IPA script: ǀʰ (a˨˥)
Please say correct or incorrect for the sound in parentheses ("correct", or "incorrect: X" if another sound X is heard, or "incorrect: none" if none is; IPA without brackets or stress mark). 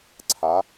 correct